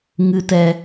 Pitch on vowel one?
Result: low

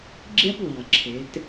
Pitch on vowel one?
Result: high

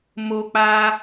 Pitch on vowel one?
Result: high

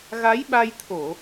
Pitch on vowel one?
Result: rising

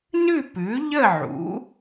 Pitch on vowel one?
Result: falling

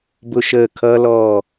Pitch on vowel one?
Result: high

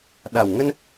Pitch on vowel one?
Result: low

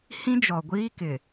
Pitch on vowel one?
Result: high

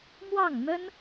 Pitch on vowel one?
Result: falling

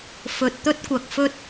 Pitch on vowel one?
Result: low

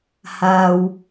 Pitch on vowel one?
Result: low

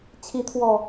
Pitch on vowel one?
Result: rising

